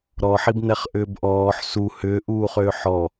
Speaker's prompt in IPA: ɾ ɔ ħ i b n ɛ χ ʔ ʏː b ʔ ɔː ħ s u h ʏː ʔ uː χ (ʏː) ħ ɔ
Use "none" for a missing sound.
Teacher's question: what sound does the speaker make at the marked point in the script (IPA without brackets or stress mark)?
ʏː